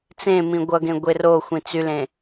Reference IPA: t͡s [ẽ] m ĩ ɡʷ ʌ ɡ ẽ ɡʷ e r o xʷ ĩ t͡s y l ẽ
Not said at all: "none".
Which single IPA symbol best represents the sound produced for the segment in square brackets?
ẽ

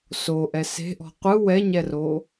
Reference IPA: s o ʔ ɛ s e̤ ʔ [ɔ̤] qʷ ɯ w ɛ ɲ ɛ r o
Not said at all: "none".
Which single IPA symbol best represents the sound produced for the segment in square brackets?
ɔ̤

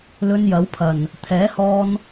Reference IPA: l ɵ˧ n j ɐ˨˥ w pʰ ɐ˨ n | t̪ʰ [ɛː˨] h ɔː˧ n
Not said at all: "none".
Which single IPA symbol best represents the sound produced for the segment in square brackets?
ɛː˨˥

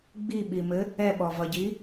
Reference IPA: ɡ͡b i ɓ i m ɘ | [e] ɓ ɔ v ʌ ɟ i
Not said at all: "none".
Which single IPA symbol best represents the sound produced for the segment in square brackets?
ɛ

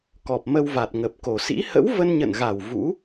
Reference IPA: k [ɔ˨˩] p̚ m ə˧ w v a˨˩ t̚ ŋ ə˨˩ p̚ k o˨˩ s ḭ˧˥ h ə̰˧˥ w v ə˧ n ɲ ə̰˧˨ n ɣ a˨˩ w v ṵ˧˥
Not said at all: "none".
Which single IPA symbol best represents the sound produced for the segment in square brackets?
ɔ˨˩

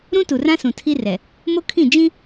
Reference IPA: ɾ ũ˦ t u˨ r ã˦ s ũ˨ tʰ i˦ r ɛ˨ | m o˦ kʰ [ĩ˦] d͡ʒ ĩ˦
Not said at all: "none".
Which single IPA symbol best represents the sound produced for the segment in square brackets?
ĩ˦˨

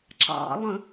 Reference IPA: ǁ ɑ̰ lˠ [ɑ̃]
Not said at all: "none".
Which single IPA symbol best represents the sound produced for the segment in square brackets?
ə̃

